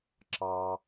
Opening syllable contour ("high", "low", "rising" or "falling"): high